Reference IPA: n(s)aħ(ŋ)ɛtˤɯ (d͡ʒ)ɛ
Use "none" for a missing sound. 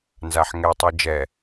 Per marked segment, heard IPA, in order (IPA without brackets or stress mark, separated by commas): z, ŋ, d͡ʒ